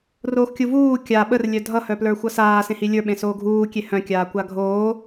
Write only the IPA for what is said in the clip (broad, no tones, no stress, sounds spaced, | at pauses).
r oː x kʲ u v uː kʲ a ɓ ə r lʲ œ dʱ ʌ h œ p l ə˞ xʷ ʌ s aː s ẽ h i lʲ ə˞ ɓ ẽ s oː ɡʱ uː kʲ e h œ̃ kʲ aː kʷ a ɡʱ oː